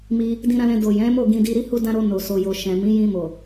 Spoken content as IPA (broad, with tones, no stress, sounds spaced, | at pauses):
m i˧ | d ĩ˧ ɾ ã˧ l ɛ̃˧ d o˨ j ɛ̃˨˦ m o˦˨ ɡ ĩ˧ d i˧ ɾ i˦ h u˦ d ã˦ ɾ o˧ n o˨ s o˨ j o˨ ʃ ɛ̃˨ m ĩ˨˦ j ĩ˧ m o˨